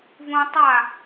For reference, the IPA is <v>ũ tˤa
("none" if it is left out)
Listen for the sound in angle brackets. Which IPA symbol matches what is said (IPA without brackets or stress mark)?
v